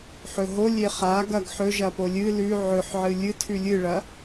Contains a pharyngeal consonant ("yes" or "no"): yes